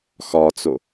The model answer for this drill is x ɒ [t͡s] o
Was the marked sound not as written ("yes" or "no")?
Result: no